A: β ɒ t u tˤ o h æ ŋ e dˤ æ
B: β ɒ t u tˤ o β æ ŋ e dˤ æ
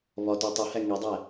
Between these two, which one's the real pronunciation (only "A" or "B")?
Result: A